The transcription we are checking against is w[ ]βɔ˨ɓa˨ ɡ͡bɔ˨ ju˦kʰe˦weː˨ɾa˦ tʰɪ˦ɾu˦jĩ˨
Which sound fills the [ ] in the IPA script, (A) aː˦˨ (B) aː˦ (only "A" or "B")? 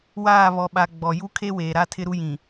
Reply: A